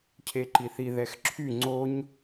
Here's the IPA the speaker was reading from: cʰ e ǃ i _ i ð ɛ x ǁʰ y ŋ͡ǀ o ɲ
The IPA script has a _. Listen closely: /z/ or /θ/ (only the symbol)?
θ